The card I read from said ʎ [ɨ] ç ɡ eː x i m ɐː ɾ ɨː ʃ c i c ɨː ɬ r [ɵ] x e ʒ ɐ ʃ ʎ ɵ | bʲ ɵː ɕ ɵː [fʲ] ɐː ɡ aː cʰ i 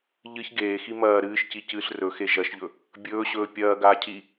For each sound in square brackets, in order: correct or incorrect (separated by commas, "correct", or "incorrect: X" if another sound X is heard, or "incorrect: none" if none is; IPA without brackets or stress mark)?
correct, correct, incorrect: pʲ